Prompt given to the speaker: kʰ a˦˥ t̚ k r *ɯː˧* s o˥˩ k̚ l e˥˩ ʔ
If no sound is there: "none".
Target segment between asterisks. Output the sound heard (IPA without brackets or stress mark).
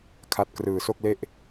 ɯː˧